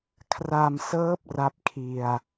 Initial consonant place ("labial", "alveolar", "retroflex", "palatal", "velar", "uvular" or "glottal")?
velar